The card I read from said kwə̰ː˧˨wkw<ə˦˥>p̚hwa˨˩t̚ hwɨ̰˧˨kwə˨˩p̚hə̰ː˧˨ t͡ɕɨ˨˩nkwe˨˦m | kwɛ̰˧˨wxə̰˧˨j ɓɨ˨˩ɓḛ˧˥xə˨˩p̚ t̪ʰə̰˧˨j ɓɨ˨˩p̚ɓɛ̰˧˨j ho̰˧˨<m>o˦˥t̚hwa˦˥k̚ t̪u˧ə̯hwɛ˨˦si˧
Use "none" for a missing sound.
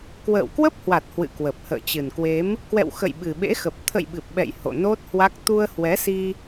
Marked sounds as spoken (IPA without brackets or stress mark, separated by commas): ə˦˥, n